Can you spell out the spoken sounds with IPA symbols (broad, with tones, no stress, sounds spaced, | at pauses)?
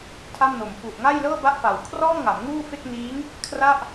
tʰ a˥˩ m n o˨˩ m f u˨˩ ʔ ŋ a˥˩ j l ɤː˥˩ b a˥˩ ʔ f a˨˩ w kʰ r ɔː˥˩ m ŋ a˩˦ m ŋ uː˥˩ f e˥˩ k̚ n iː˦˥ ŋ | kʰ r a˥˩ ʔ